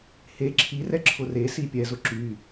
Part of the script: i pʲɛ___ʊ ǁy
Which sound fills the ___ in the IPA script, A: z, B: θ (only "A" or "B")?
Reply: A